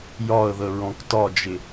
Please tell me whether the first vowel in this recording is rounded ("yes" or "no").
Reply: yes